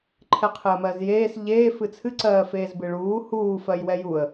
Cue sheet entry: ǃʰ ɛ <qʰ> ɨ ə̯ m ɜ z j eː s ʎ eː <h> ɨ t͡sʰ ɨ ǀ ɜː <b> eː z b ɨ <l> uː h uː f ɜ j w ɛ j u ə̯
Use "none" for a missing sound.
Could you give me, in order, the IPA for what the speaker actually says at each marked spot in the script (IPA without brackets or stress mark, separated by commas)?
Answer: qʰ, f, f, ɭ